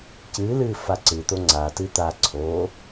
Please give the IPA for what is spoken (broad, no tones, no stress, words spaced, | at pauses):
cɨːlɨː faǀɨt̪o ŋ͡ǀatɨ t̪a ǀʰo